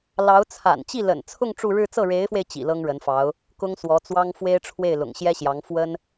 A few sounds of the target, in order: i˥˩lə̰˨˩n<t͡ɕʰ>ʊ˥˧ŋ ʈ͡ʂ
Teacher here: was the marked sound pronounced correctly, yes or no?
no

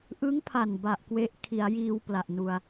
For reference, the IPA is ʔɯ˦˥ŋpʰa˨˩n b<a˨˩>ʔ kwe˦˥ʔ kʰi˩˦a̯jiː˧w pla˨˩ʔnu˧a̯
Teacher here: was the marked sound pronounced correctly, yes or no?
yes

